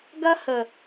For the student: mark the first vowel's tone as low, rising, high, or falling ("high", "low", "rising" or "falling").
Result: high